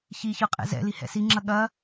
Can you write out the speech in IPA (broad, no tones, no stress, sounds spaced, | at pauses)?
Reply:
ç i ç ɤ qʼ ɛ̰ z ɛ̰ l i h ɛ̰ s i ŋ͡ǁ ɐ ɠ ɐ